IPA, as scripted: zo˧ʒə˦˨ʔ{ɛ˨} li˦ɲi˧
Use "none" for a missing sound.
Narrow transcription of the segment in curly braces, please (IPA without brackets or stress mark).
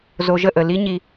ə˨